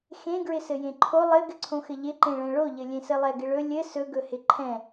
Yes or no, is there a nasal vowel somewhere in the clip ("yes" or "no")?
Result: yes